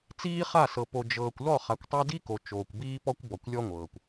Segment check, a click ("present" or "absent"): absent